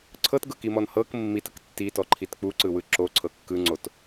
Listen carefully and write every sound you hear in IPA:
ǀʰɤtɡɤkimɔn hɤk mːitɯk tːitɔǃʰit k͡puǀɯwɯ ǁoǀʰɤ kːɯŋ͡ǀot

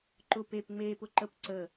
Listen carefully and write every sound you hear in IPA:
ǃʊ pep ŋ͡meːpʊ ǃəp ǀə

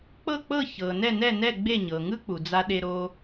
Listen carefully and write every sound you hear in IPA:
k͡pɤ˥˩k͡pɤ˥˩ çɤ˩ nɛ˥˩nɛ˥˩nɛ˥˩ ɡ͡be˥˩ɲɤ˩ŋɯ˥k͡pu˩ d͡za˧ɗe˧ ɾo˧

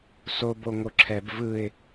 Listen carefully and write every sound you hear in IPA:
soboŋo ǁʰɛb vɯɪ̯

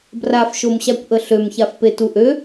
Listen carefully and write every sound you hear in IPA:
brafʃomɕakʷ ʔəɬømçafpe tuʔø

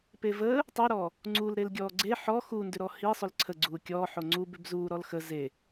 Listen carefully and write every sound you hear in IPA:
pevəː | tˤøɾɔː | ŋ͡ǀul ɾelɡʲɔːɡ͡ǀe ħɔ xundʏɾɔ hisˤʏl ǀʰə ɡ͡ǀuːkʲɔː ħoŋ͡ǀu bʏbzuː ɾɔlxə ze

